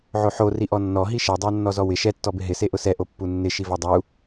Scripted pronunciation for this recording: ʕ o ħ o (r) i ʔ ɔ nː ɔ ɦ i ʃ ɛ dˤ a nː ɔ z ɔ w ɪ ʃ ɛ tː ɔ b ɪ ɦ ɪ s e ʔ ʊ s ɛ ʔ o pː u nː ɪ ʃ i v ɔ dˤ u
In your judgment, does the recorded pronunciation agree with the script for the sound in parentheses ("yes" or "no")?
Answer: yes